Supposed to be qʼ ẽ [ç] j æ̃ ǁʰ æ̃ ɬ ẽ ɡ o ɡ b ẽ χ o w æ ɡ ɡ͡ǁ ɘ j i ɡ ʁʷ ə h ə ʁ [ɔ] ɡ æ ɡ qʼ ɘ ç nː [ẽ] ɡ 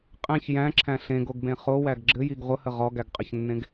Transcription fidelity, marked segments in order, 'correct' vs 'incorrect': correct, correct, correct

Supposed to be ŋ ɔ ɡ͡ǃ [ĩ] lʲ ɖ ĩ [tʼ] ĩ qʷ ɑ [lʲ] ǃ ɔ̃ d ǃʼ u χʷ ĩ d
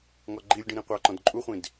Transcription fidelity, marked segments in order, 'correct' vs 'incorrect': incorrect: i, incorrect: ɾ, incorrect: none

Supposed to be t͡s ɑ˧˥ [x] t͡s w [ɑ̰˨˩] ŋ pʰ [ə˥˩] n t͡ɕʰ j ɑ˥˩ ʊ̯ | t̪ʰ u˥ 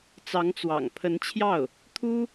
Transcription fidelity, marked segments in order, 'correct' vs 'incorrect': incorrect: ŋ, correct, incorrect: ə˧˥

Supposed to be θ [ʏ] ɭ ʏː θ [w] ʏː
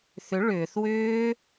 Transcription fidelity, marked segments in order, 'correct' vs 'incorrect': correct, correct

